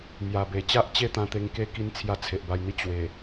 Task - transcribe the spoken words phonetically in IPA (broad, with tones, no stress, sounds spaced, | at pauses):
m j a˨˩ b e˨˩ t͡ɕ a˦ ʔ t͡ɕ e˥˧ t̪ ã˧ t̪ e˧ ŋ k e˦ k i˧ n t͡sʰ j a˧ t͡sʰ e˨ ʔ b a˧ j n̪ i˦ t͡ɕ w e˨˩